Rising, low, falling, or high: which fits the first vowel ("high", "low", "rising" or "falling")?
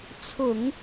low